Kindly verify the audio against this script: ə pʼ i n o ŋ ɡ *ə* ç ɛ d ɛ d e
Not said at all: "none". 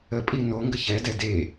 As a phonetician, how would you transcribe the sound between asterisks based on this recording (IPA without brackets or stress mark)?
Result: ə